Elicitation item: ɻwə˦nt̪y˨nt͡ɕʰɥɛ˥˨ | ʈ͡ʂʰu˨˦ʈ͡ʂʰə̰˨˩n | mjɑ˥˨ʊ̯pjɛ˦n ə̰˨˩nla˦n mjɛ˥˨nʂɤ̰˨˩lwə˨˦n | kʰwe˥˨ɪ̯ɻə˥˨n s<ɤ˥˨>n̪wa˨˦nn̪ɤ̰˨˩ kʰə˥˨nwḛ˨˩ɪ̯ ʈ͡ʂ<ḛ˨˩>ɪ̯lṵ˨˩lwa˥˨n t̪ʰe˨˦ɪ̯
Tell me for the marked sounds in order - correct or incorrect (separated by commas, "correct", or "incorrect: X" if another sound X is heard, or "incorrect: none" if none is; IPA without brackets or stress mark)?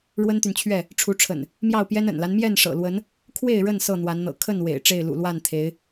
correct, incorrect: e˥˨